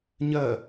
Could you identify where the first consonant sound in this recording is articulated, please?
palatal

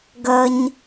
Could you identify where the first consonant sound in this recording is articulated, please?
velar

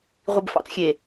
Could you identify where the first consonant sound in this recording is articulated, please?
uvular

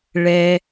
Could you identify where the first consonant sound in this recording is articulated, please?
retroflex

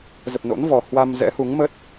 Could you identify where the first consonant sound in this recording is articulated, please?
alveolar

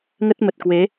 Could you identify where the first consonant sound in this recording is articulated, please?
velar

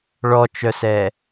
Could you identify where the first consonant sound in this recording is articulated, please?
retroflex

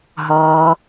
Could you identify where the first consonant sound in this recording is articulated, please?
glottal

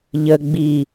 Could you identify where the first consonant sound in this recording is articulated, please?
palatal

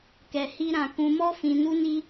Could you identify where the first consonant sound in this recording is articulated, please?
velar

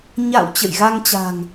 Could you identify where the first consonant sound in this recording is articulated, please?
palatal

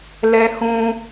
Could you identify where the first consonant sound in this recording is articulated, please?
alveolar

